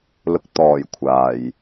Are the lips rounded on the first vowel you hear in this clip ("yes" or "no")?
yes